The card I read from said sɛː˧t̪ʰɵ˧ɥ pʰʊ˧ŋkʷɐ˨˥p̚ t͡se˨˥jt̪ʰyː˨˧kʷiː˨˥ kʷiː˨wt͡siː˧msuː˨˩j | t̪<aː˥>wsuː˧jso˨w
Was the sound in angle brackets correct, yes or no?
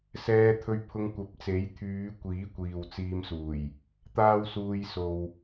yes